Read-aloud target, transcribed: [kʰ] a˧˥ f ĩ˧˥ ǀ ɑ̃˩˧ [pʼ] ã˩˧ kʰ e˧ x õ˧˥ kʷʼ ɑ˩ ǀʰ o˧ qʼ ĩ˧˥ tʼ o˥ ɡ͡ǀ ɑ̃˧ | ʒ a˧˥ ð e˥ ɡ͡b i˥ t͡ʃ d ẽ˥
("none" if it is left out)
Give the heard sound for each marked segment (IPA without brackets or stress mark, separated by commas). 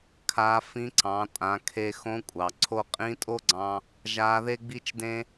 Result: kʰ, tʼ